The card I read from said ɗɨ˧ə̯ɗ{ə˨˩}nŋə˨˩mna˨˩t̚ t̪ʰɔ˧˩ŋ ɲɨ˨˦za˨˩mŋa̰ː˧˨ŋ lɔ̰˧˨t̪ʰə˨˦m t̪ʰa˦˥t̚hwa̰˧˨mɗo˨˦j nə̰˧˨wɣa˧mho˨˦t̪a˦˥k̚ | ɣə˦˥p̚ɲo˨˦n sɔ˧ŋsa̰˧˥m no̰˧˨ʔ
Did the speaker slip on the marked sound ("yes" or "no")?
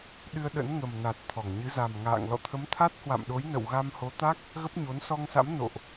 yes